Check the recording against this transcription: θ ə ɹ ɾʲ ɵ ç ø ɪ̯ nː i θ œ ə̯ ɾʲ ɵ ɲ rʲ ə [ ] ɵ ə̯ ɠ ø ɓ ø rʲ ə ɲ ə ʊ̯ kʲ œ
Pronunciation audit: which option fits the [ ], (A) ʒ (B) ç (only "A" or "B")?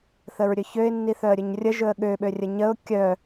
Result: A